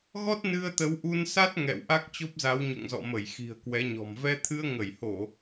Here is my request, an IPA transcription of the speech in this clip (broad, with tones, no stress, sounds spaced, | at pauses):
ɣ ɔ˦˥ t̚ n ɨ˧ ə̯ t̪ ə˨˦ w ʔ u˧ n s a˦˥ t̚ ŋ ɛ̰˧˨ w ʔ a˦˥ k̚ t͡ɕ o˦˥ p̚ z a˨˦ w ɲ o̰˧˨ ŋ z ɔ̰˧˨ m ə˧˩ j x i̤˨˩ ə̯ k w ɛ˨˦ ɲ ɔ̤˨˩ m v ɛ˧ t̪ʰ ɨ˧ ə̯ ŋ ə˧˩ j h o˧˩˨